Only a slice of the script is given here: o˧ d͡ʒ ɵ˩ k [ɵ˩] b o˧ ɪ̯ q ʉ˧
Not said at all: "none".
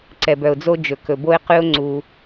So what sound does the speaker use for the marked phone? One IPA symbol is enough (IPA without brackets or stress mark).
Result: ɵ˩